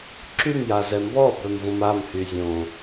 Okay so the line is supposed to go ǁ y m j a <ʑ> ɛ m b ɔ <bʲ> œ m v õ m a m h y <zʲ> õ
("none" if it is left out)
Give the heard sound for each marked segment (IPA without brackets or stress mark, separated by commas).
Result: z, b, zʲ